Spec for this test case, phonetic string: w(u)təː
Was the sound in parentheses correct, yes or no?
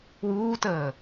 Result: no